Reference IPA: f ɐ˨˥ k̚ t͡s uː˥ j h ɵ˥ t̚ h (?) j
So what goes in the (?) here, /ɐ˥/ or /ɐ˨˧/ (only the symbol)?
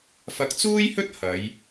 ɐ˨˧